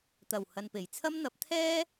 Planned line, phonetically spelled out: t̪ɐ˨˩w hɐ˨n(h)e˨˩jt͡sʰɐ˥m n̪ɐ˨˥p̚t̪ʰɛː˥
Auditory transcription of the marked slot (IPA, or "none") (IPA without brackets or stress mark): p